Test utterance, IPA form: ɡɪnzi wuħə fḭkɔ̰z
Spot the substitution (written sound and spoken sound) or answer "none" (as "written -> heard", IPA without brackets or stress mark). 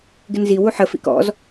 none